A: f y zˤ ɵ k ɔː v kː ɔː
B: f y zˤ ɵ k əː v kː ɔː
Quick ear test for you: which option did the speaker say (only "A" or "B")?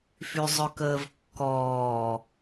B